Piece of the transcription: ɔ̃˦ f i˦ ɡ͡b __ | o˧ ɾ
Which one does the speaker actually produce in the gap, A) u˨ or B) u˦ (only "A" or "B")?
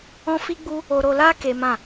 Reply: B